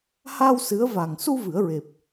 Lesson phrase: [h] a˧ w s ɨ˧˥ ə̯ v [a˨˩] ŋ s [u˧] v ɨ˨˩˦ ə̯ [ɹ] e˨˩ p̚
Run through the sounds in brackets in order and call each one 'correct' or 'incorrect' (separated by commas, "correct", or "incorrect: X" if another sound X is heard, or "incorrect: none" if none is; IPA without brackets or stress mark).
correct, correct, correct, correct